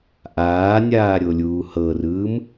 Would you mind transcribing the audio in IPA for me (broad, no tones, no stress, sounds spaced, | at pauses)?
ʔ aː nʲ aː ɾʲ o lʲ uː h ɤ r ɯː m